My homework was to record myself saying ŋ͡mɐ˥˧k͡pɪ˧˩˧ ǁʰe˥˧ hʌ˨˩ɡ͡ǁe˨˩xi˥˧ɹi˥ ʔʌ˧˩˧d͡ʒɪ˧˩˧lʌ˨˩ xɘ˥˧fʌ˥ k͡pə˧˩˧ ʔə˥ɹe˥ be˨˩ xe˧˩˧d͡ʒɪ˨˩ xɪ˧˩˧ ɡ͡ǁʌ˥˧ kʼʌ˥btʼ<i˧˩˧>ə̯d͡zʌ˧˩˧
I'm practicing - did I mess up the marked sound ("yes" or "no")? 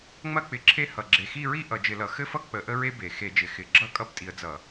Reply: yes